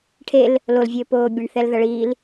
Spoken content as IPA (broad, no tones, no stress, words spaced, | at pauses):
ʈʰel | lolvʲɘː poːbʲɐɳ θɛlðɐɭiːl